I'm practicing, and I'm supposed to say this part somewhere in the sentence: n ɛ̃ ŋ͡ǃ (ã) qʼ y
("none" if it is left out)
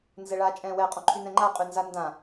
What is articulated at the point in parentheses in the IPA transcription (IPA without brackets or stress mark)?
a